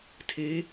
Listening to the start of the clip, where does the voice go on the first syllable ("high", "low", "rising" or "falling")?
rising